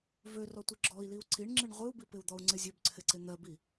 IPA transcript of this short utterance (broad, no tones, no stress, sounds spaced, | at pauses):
v ø r ɔ tʷ ɨ ɡ͡ǁ ɔ i̯ l i u̯ ǀ i ɳ ŋ͡ǁ ɨ ɳ ʁʷ ɨ u̯ b i p ɪ u̯ d̪ ɔ u̯ ŋ͡ǀ ɪ zʲ ø b ǀʰ ɪ ǀ ɪ n̪ ɜ b i